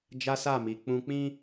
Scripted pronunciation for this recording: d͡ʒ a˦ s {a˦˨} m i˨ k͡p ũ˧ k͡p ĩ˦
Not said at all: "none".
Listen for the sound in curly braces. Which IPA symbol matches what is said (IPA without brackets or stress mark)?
a˦˨